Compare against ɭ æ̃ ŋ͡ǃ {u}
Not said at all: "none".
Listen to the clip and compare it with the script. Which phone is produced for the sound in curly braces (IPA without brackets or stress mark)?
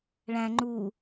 u